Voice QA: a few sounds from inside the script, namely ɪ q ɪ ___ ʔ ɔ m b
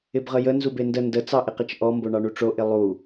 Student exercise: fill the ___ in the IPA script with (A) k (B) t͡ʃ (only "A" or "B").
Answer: B